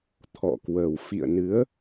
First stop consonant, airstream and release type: aspirated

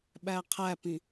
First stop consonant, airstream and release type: implosive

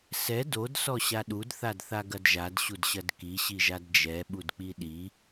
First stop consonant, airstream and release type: plain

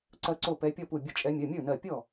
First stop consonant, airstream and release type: click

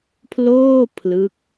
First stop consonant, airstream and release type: aspirated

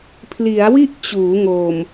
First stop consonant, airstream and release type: aspirated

